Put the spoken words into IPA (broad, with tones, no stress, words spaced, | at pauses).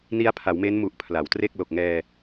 ni˦˥a̯pʰa˩˦wme˦˥nmu˨˩ʔ pʰla˩˦wtre˥˩k̚ lo˨˩k̚ŋɛː˧